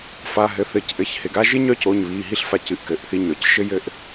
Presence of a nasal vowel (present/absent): absent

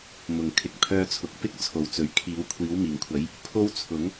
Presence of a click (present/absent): absent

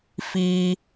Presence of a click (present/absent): absent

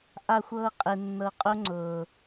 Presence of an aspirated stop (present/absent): absent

